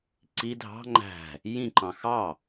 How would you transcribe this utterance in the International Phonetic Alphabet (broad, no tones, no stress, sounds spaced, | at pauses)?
ǀ i dʱ ɑ̤ ŋ͡ǃ æ̤ | j ĩ ǃ ɑ̃ x ɑ